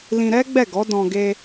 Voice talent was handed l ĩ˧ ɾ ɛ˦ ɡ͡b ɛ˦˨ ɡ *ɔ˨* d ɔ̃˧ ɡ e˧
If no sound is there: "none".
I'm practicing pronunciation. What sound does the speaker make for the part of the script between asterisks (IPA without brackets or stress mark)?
ɔ˨˦